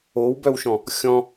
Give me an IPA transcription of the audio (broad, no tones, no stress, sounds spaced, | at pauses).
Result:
o w b œ w ʃ ɔ̃ | xʲ ɔ̃